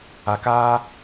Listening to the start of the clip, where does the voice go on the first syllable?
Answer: low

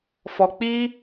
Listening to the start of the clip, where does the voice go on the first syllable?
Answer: low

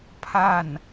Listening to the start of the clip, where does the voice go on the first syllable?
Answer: falling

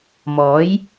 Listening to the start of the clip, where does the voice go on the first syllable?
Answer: rising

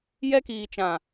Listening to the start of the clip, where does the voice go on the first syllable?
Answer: high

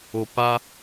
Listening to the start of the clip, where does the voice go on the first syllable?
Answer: low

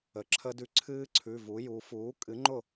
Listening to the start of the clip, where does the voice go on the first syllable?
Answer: rising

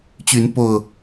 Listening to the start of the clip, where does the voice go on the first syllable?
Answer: rising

